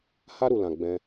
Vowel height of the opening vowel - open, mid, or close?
open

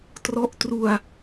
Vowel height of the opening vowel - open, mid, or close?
mid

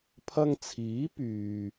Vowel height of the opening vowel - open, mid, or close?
open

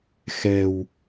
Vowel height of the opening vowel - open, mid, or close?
mid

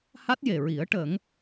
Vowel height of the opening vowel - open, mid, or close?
open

